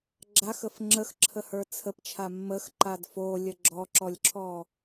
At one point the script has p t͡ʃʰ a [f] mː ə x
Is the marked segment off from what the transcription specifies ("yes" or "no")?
yes